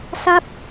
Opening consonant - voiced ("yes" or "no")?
no